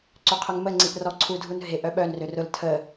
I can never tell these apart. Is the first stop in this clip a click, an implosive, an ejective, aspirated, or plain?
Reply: click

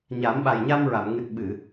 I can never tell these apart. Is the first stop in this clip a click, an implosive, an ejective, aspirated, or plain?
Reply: implosive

